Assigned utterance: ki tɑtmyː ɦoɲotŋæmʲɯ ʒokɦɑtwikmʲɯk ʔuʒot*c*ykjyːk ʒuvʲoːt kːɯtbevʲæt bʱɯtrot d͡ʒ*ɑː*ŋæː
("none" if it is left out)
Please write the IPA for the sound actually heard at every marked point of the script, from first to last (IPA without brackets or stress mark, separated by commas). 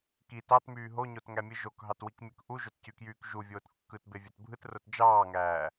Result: c, ɑː